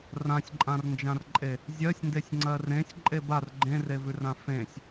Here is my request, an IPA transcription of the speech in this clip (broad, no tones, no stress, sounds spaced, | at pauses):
r ã sʲ ǃʼ ã r n d͡ʒ ã r ǃʼ e | zʲ ɜ sʲ n d e sʲ ŋ͡ǀ ɜ r ẽ sʲ ǃʼ e b a r ɡ͡ǃ ẽ r e v ʉ r ã f ẽ sʲ